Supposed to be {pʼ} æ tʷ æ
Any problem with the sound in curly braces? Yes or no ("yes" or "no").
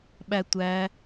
yes